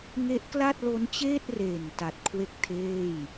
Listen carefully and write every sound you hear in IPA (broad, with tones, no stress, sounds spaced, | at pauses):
ŋ e˦˥ ʔ k l a˥˩ t̚ l o˦˥ n t͡ɕ eː˥˩ t̚ r eː˨˩ n t a˨˩ t̚ kʰ w e˥˩ k̚ tʰ eː˥˩ j